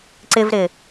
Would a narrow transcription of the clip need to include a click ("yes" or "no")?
yes